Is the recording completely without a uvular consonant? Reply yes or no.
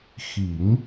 yes